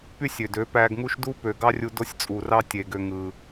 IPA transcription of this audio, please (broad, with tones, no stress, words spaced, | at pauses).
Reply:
py˦sʲø˨dø˨˦ pæ˧ɡŋu˦ʃ du˦pø˨ɡɑ˦rʲu˧ do˦sʲt͡sʼu˨rɑ˦ tʲe˨ ɡø˧ŋɯ˨